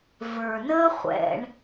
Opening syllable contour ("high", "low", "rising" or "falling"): low